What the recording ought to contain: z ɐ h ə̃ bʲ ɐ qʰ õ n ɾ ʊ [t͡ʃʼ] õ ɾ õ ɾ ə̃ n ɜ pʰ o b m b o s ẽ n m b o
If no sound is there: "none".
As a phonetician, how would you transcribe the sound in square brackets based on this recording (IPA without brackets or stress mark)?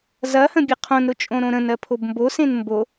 t͡ʃʼ